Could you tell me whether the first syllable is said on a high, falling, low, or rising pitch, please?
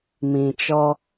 low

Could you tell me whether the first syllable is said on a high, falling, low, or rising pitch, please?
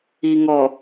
low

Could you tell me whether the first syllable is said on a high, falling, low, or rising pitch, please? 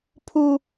high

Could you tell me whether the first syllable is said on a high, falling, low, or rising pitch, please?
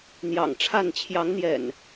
low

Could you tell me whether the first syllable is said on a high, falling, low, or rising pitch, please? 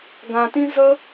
low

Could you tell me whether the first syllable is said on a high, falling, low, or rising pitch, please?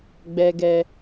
low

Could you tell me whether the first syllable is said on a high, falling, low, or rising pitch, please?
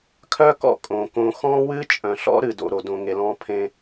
high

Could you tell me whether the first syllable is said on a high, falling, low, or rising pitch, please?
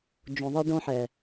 low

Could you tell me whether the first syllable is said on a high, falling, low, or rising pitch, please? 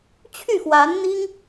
falling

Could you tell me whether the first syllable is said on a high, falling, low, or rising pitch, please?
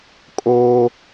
high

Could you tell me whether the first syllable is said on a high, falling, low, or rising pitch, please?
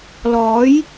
rising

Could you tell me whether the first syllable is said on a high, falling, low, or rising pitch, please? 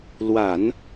low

